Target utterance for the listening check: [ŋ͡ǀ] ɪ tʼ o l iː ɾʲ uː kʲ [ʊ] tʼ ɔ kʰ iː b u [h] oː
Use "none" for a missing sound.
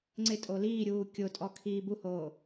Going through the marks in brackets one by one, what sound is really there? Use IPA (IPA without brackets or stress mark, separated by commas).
ŋ͡ǀ, ʊ, h